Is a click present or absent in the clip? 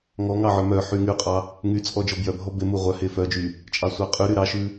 absent